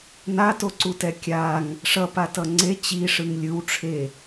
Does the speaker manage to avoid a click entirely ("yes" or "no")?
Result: no